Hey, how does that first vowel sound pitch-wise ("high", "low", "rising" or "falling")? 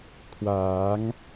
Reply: rising